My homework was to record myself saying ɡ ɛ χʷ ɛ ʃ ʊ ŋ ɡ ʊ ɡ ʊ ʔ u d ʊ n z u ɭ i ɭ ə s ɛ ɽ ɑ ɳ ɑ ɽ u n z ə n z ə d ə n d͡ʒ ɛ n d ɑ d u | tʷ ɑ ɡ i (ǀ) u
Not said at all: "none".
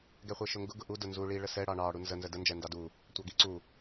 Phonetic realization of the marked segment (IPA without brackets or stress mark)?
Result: ǀ